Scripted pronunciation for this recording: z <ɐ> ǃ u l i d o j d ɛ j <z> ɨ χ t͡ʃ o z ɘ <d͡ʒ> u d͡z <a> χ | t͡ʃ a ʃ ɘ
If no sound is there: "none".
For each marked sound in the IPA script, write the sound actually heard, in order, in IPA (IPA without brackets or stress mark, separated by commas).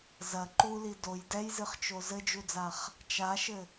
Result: ɐ, z, d͡ʒ, a